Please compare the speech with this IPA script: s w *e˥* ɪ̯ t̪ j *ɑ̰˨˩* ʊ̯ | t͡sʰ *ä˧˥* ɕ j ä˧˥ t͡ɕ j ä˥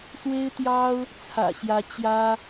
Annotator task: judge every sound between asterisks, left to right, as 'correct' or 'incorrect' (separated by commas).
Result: correct, incorrect, incorrect